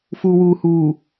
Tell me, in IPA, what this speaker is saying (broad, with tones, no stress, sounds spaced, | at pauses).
f uː˨ w uː˨ h uː˨